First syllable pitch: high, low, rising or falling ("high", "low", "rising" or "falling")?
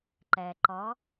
low